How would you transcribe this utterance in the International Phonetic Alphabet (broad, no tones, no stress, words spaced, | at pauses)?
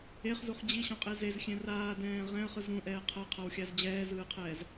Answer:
eχzuχ d͡ʑiɕɔ̃qʼe zezxʲɛ̃ raːdɛ̃ː ʁɛ̃ə̯χɯz ɾũʔɛː qʰɤqʰawxʲaz d͡ʑɛːzɯːqʰɛːz